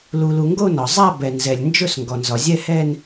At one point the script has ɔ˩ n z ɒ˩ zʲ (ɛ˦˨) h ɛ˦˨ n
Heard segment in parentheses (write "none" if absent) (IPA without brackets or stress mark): ɛ˦˨